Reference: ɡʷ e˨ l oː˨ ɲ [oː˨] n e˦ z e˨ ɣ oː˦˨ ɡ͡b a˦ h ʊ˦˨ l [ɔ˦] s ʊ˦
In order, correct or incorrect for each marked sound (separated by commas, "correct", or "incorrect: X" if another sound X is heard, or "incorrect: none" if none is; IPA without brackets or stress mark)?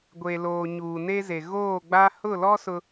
incorrect: uː˨, correct